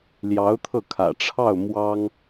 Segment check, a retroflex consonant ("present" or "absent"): present